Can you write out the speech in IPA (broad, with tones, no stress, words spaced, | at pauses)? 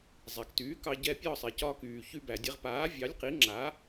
zˤe˩ktyː˩˥kɑ˧ ɟɛ˧ pʲɒː˥˩sˤe˩cɒː˧kyː˩ çy˧bæ˩dʲe˧ʁ paː˩˥vʲɑ˩˥lʲqi˩˥ ŋ͡ǁa˩˥